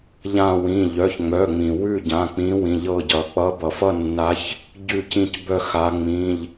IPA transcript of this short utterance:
ʎã˦˨wĩ˩˧˩ ʎœ˩˧˩çŋ͡mœ˩˧˩ŋ͡mĩ˩ wʉ˦˨ɟã˩˧˩k͡pĩ˨˦wĩ˩˧˩ ʎɤ˦˨ɟʌ˩ k͡pʌ˨˦bʌ˩fʌ˦˨nːa˨˦ç | ɟʉ˦˨cĩ˦˨c bœ˦˨xa˨˦ ŋ͡mĩ˩˧˩ʎ

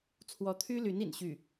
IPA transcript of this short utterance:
t͡sʰwɔ˧˥t̪ʰy˥ly˧˥n ḭ˨˩nɕy˥˩

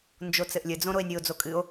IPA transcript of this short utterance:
nd͡ʒot͡sɘʔlʲɘd͡zõ ɾoe̯nʲɨo̯d͡zo kʼɨo̯

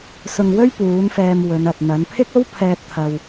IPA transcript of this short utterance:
sʊ˧ŋwɵ˥ɥ puː˨˥nfɛː˧m wɵ˨˧nɐ˨t̚n̪ɐ˨˥n pʰɪ˥k̚o˥wpʰɛː˧t̚ t̪ʰɐ˧w

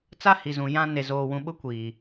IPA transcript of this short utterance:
t͡sa˦hi˨zũ˨ jã˦ ne˨zoː˨wũ˨ɓʊ˦ kʷiː˨

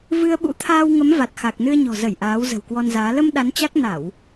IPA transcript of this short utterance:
vɨ˧ə̯ ɓṵ˧˥t̪ʰaː˧wŋə˨˦m va˨˩t̚xa˨˩k̚nɨ˧ə̯ɲɔ̤˨˩ zə˧˩j ʔaː˨˦wzə̤˨˩wkwɔ˧nzaː˨˦ lə˧m ɗa˨˦nt͡ɕa˦˥k̚ na˧˩˨w

